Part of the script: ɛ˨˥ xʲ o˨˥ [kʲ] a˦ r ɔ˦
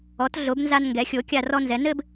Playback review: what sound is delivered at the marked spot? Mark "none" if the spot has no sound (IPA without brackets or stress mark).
kʲ